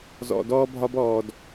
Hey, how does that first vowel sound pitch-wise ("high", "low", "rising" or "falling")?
low